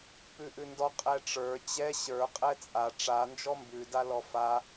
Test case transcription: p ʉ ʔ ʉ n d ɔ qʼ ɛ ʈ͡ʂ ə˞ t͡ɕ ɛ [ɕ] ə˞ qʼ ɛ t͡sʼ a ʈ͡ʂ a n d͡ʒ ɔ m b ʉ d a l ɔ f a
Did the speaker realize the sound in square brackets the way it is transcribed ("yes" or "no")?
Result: yes